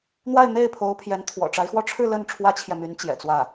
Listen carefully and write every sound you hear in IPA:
n̪wa˥˧ɪ̯n̪e˥˩ɪ̯pʰo˧˥ʊ̯ pʰjɛ˧˥nt̪ʰwɔ̰˨˩ʈ͡ʂa˧˥ɪ̯xwɔ˥˧ ʈ͡ʂʰɻ̩˥˧ lə˥˩n ʈ͡ʂʰwä˥t͡ɕʰjɛ˨my˧˥n t͡ɕjɛ̰˨˩t͡swä˥˩

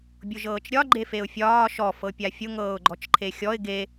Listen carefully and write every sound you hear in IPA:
bʲʊʒɤːt͡ʃɾʲɒ ɡ͡ǃefeʊ̯fʲɒː ʃɔ fɤpʲafʲʊ ŋɤːʊ̯ɡ͡ǃɔt͡ʃǃʰexʲɔɪ̯ ɡe

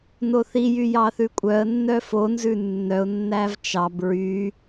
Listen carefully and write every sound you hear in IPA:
noθijy jɑθʉkʷʼœə̯nːœ fonzʉ nːœʊ̯nːæv t͡ʃɑb ɹy

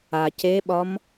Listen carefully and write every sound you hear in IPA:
ac eɓɒm

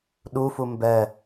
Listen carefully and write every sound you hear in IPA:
ɗufu mbɛ

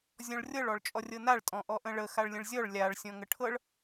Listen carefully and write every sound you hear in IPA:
zʲɔ̃ɭrʲɤɭ ɔɭt͡ʃʼɔrʲɤnaɭ tʼɔ̃ʔɔʔə̃ɭə xaɭlʲə̃ɭzʲɔɭ lʲaɭ sʲɔ̃ŋəʈʰɤɭ

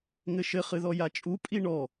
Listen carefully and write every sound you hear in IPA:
ŋɘʃɘ χɨðɔjat͡ʃʼu pʼiɳɔ

